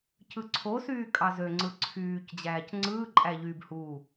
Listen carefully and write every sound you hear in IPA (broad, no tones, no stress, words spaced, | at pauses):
cɯǀʰosyː kʼɑzøŋ͡ǀɯ ǀʰyːcd͡ʑæːc ŋ͡ǀɯːǃʼæ ʎyːbhuː